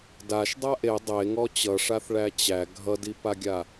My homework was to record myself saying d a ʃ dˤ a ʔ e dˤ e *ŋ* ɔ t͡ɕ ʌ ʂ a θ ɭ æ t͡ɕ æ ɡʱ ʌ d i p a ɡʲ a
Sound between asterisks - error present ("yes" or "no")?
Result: no